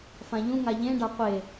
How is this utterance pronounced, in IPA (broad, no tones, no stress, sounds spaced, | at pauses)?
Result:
f ã ʎ ũ ŋ a ʎ ẽ ɖ a qʷ e